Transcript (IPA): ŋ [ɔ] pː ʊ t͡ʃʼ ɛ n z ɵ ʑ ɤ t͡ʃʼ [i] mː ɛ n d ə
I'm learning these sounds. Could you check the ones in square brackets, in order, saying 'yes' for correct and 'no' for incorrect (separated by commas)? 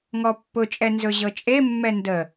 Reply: yes, no